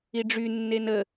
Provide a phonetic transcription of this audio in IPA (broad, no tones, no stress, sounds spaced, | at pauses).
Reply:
i ɖ͡ʐ y nː e n ə